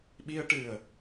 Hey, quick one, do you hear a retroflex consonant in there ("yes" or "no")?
yes